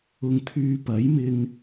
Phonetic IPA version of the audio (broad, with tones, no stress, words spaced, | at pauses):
ʊ˨ŋ t̪ʰyː˧pɐ˨˥jmɪ˧ŋ